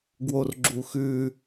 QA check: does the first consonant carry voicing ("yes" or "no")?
yes